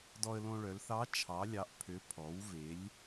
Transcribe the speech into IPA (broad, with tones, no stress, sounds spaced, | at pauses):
d ɔ˧ ə̯ l õ˧ ɭ œ˩˧ l θ ɑ˧˥ t͡ʃʰ ɑ˩˧ lʲ ɑ˩˧ ʔ pʰ ø˩˧ pʰ ɔ˩˧ w v e˩˧ lʲ